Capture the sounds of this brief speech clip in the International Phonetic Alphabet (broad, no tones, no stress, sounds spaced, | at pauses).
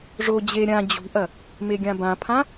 ʐ o d͡ʑ e ɾʲ ã d͡ʑ ṳ ʔ ɐ | m e ɡʲ ã b ã pʰ ã